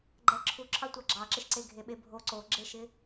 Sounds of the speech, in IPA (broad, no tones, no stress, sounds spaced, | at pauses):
ɡ͡ǃ ɛ ǁʰ u ǁʰ ɑ tʷ ɑ ɡ͡ǁ ɑ ǁ ɪ ʃ ǀ e ɡʱ e ɓ e bʱ o ǀ o ɡ͡ǁ e ʃ ɪ